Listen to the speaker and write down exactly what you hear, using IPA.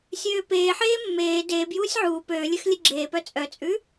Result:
sʲ øː p eː ħ eː mː eː d eː b j uː sʲ ʕ uː p øː lʲ ø x lʲ e ɡ͡ǁ eː p œ t͡sʼ œ t͡sʼ ʉ

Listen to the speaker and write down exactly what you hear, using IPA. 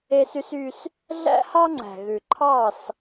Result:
e˦ s y˦ s y˦ s | ɮ æ̰˦ h ɑ˦ ŋ͡ǀ æ̤˨ ɣ ʉ˨ ǃʰ ɑ˦˨ s

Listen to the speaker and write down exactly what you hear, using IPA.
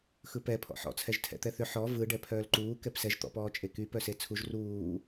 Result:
x ɯ p ɛ pʰ ɔ̰ ħ ɔ̰ t͡sʰ ɛ ʒ tʰ ɛ̰ t̪ ɛ θ ʏ ħ ɔ v ɯ ɖ ɛ pʰ œː l ǃ uː k ɛ p s ɛ ʒ t̪ ɔ̰ p ɔː t͡ʃʼ e k y p œ s e t͡sʰ u ʒ r uː

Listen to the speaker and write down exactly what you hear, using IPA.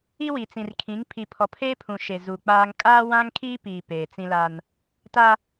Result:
i˦ w i˨ t͡s ĩ˨ r kʰ ĩ˨˦ ŋ pʰ i˨ pʰ ɔ˨ pʰ eː˦ pʰ ũ˨ ʃ e˨ z u˨ k͡p aː˦ ŋ kʼ aː˦ w ã˦ ŋ kʰ iː˦ p iː˨ p eː˨ t͡s ĩ˦ l a˦ n | t a˦

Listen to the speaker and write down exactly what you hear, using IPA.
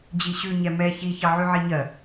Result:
d͡ʑ i ɕ ʉ ɲ ɛ m ɛ ç i ç ɑ ʕ ʉ ʕ i ɲ ɜ

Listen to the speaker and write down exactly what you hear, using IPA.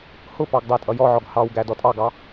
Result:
h ʊ p ɑ ɡ dˤ æ tʼ ʌ j ɔ ʕ ɔ ɡ h ɑ w ɡ æ d ɔ tʼ ɑ ɡ ɑ

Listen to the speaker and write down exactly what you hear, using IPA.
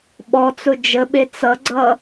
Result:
ɓ ɔ t͡s ʊ d͡ʒ ə ɓ e t͡s ʌ ɡ͡ǀ ʌ

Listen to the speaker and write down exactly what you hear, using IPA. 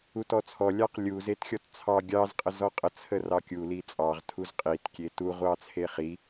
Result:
u t ɔ t͡sʰ ɔ lʲ ɑ q lʲ u z e t xʲ ɔ t t͡sʰ ɑ ɡʲ ɑ z qʼ ə z ɔ qʼ ə t͡sʰ ə r ɑ kʲ u l i t͡sʼ ɑ ʁ tʰ u z qʼ i t kʲ e t u ʁʷ ɑ t͡sʰ e χ i

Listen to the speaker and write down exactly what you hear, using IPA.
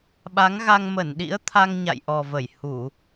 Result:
ɓ a˨˦ ŋ ɣ a˧ ŋ m ə˧˩ n ɗ ḭ˧˥ ə̯ t̪ʰ a˧ ŋ ɲ a̰˧˨ j ʔ ɔ˨˩ v ə˧˩ j h u˧˩˨

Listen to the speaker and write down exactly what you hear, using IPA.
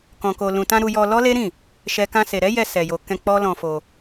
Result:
k ɔ̃˨ k o˨ l ũ˨ t ã˧ ɾ u˧ j ɔ˧ l ɔ˦ l e˦ ɾ ĩ˦˨ | ʃ ɛ˦ k ã˧ s e˨ ɾ ɛ˨˦ j ɛ˧ s ɛ˨ j o˨ k ɛ̃˧ k͡p ɔ˦ l ɔ̃˧ f o˧

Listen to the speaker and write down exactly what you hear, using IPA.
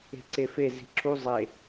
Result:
e̤ ǀ e f e z i̤ ǁ u zˤ e

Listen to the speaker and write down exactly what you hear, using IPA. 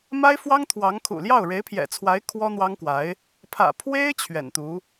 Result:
m a˥ ɪ̯ f w ɑ˥ ŋ t̪ʰ w ɑ˧˥ ŋ kʰ ṵ˨˩ l j ɑ˥˩ ʊ̯ ɻ e˧˥ ɪ̯ pʰ j ɛ̰˨˩ t͡sʰ w a˧˥ ɪ̯ kʰ w ɔ˥ n̪ w ɑ˥ ŋ k w a˧˥ ɪ̯ | pʰ ä̰˨˩ pʰ w e˥ ɪ̯ t͡ɕʰ ɥ ɛ̰˨˩ n t̪ u˧˥

